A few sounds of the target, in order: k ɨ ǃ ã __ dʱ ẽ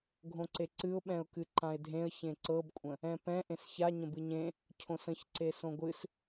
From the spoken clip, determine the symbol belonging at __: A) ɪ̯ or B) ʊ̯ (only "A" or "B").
A